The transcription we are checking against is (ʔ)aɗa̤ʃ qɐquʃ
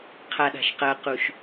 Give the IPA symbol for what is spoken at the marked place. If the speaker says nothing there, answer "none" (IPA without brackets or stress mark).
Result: qʰ